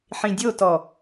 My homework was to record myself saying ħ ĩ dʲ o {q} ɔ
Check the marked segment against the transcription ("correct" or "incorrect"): incorrect